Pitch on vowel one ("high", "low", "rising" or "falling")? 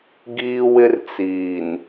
high